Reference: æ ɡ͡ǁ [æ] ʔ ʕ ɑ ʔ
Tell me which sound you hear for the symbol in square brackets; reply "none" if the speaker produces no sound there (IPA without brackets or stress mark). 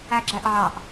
æ